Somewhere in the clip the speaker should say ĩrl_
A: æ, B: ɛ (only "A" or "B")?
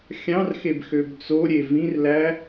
A